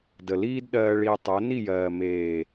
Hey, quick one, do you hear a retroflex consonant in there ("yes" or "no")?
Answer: yes